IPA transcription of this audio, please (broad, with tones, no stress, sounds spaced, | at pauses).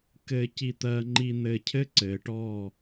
k ɘː˧ c i˧ t̪ ɜː˧ ŋ͡ǃ i˧ n̪ ɘː˧ cʰ ɘ˦ ǀ ɘː˨ ʈ ɔː˦˨